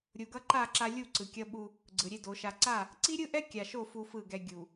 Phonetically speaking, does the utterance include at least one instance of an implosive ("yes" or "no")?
yes